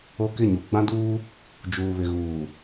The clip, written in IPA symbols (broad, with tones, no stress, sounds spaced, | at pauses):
o˦ k ɪ˦˨ ɲ u˨ ɡ͡b ã˦ d uː˦ | d͡ʒ uː˨ β ɪ˨ ɣ uː˨